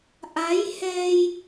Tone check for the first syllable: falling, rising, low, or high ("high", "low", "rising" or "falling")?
rising